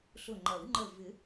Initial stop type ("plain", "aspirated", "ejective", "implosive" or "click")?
click